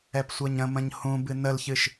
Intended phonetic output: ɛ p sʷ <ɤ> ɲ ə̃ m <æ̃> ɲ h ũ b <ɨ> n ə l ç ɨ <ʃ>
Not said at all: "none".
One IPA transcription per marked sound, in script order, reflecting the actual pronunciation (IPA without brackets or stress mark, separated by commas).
ɤ, ə̃, ɨ, ʃ